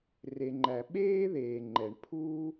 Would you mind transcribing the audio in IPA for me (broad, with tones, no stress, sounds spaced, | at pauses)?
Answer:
r e˨ ŋ͡ǃ æ˨ ɓ eː˥ ð eː˨ ŋ͡ǃ ɛ˨ ɳ pʰ uː˥